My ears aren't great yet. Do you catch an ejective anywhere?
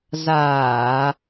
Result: no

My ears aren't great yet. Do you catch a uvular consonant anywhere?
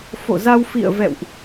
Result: no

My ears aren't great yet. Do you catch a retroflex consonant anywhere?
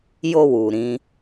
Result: no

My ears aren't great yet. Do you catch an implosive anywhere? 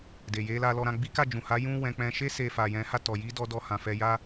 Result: no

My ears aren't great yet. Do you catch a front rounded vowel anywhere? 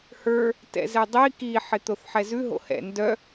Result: yes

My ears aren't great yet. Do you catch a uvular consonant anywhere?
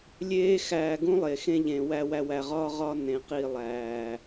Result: yes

